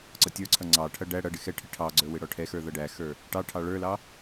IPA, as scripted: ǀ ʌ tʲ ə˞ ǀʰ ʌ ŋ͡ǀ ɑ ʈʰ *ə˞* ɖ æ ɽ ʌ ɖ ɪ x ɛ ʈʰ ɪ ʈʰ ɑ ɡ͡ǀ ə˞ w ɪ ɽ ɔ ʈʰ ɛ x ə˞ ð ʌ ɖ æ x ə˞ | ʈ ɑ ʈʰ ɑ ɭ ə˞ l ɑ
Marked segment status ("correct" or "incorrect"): incorrect